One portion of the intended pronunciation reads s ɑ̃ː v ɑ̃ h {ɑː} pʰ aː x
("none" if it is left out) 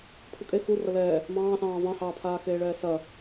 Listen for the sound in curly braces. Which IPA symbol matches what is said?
ɑː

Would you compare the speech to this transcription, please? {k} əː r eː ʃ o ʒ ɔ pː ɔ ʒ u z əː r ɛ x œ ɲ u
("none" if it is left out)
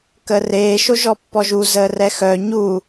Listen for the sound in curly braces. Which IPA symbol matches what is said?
k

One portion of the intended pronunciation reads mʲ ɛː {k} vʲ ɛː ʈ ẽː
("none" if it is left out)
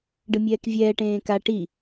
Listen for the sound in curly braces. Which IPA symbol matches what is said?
k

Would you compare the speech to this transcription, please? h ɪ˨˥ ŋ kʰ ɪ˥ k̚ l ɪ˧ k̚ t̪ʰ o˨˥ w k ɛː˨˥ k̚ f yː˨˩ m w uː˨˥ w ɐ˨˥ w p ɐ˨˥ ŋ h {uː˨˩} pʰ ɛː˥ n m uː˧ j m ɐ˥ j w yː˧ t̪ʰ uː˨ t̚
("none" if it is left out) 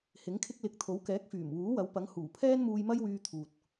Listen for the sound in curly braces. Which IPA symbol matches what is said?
uː˨˩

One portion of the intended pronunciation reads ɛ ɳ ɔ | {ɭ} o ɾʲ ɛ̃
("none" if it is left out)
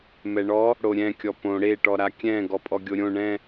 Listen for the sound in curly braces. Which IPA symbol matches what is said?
ɽ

